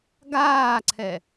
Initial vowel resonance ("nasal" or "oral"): oral